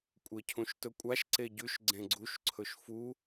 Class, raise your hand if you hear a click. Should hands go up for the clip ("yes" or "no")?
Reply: yes